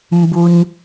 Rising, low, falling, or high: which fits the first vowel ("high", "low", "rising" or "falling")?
high